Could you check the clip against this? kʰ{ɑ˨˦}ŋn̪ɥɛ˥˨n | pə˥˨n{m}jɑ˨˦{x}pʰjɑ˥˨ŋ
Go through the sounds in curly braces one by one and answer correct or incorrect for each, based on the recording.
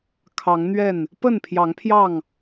correct, incorrect: pʰ, incorrect: ŋ

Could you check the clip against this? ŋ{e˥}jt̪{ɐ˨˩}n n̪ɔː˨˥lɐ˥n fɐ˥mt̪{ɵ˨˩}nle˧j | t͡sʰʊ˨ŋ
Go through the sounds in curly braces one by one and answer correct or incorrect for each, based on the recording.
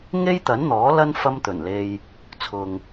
correct, incorrect: ɐ˨˥, correct

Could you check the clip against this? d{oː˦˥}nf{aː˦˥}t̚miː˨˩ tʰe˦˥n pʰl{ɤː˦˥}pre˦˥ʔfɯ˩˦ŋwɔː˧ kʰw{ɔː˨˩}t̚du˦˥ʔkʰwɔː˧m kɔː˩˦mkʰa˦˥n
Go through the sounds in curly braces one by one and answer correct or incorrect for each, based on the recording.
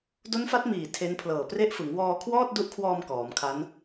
incorrect: o˦˥, incorrect: a˦˥, incorrect: ɤː˨˩, incorrect: ɔː˥˩

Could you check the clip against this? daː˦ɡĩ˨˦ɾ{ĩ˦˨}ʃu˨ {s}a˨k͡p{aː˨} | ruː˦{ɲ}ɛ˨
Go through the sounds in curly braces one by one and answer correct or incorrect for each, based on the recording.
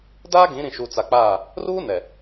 incorrect: ĩ˨, incorrect: t͡s, incorrect: aː˦˨, incorrect: n

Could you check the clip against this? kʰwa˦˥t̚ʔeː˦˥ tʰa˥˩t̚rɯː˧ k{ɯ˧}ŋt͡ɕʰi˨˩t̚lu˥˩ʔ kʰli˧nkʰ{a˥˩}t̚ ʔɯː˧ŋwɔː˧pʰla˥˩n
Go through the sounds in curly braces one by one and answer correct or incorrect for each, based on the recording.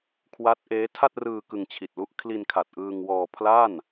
correct, incorrect: a˨˩

